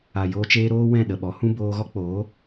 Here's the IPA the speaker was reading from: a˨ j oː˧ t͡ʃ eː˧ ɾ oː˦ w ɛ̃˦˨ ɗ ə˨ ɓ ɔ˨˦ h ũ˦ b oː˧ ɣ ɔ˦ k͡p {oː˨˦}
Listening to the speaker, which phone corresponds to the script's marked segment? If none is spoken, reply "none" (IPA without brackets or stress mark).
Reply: oː˨˦